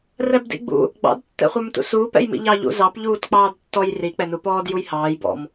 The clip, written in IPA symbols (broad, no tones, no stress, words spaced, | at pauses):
rɛbdḭɡ͡bṵ | ɡ͡bɑ̰d tːɛ̰χʷə˞mtṵsuːp ɛ̰jmḭʎɑ ʎṵzɑp ʎuːtk͡pɑːdtːɔj ri k͡pɛnupɔːd jujhɑːj bɔ̰m